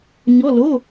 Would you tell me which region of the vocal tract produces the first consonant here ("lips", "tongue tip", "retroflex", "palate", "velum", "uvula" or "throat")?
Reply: palate